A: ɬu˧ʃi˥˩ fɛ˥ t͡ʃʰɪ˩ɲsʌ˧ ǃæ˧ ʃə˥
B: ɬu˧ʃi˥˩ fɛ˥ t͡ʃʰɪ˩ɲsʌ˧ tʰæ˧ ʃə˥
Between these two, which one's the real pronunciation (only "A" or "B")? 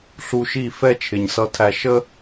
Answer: B